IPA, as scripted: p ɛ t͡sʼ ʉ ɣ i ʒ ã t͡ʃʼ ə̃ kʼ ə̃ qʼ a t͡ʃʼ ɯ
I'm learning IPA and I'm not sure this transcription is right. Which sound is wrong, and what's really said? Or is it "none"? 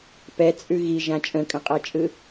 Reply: none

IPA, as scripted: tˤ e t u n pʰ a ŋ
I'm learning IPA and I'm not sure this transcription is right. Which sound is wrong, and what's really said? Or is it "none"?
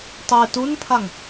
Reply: none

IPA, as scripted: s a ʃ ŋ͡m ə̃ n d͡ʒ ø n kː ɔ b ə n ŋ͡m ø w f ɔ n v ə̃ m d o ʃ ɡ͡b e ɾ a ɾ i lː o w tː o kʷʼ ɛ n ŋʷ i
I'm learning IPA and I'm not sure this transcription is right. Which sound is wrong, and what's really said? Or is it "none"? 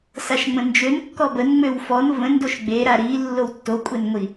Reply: m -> n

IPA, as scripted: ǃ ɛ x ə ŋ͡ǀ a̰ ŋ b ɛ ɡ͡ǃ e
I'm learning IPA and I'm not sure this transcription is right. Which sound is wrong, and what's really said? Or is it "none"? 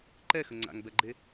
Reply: none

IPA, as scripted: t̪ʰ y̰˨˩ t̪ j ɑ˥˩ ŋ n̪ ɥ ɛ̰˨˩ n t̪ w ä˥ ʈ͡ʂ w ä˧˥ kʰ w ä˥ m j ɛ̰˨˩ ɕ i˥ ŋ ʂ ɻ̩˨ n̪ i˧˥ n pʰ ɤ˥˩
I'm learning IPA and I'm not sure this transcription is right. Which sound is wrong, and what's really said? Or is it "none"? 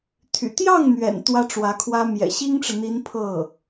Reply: ʂ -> ʈ͡ʂ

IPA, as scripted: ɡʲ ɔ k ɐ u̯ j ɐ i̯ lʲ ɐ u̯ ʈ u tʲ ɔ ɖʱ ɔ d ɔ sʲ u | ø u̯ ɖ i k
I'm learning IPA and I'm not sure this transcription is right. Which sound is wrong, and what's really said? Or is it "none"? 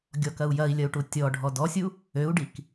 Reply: none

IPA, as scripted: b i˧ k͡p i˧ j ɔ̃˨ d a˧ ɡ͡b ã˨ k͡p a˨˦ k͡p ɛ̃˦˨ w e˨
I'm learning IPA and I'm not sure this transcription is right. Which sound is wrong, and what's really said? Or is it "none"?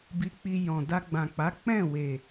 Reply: none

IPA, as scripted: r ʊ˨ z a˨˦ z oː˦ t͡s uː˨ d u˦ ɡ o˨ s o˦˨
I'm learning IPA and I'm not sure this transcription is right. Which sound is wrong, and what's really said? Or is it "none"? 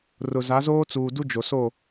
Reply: ɡ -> d͡ʒ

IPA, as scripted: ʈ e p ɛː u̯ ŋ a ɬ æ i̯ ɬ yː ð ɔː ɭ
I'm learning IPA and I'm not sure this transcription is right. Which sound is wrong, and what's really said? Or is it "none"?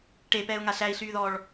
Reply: none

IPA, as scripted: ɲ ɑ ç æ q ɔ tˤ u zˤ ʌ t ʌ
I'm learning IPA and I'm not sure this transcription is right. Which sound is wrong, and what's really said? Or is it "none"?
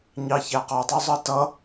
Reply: none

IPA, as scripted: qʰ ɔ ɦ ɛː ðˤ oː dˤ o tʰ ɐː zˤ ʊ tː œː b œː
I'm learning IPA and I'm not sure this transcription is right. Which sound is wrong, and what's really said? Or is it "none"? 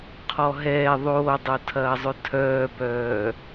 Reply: tː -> tʰ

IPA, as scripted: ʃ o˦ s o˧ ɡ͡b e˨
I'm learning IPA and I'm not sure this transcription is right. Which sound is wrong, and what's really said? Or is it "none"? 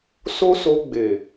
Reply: ʃ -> s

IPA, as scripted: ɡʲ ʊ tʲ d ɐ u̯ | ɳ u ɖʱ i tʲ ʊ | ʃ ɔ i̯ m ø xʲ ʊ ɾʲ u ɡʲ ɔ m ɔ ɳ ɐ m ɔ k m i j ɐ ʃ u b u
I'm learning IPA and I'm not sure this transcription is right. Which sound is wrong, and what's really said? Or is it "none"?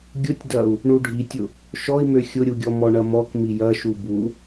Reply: none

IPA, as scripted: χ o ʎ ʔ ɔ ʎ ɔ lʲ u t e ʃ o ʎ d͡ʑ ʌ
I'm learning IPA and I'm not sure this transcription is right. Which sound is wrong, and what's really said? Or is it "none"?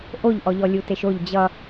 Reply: χ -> ʔ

